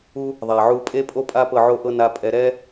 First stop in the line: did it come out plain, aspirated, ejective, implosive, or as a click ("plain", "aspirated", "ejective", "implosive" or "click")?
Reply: ejective